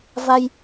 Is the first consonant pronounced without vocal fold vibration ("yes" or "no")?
no